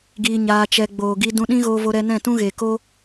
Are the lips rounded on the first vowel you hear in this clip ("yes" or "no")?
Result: no